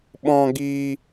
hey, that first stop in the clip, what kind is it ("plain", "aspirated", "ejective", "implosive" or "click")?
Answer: implosive